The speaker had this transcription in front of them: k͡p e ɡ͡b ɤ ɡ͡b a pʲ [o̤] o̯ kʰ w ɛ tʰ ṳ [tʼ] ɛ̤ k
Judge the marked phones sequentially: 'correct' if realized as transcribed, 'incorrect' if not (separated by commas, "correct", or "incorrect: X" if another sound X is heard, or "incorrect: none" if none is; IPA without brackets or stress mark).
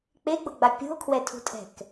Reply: incorrect: ṳ, correct